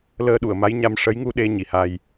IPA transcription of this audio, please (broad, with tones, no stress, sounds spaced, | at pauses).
l əː˧ ɗ u˨˩˨ ə̯ m a˧˥ j ɲ a˧ m ʂ ə˧˥ j ŋ u˧ ɗ e˧ ɲ i˨˩ h a˧ j